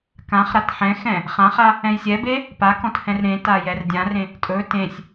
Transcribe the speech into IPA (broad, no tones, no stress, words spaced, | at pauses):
kãχɾat ħɛ̃xɛ̃ | χãχa | ɛ̃jsʲɛbe | pakɔ̃t hɛ̃rɾẽta jɛrdʲãrẽ | tʼɵ tẽsʲ